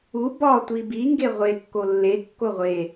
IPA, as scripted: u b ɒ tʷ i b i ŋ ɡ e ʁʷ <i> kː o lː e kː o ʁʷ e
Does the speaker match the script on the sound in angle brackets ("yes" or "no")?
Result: no